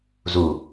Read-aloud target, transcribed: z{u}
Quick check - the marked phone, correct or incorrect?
correct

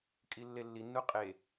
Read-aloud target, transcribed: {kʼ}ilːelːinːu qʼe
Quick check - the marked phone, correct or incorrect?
correct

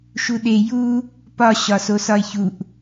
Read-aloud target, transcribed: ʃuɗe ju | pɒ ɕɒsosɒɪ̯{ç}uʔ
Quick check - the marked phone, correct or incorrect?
correct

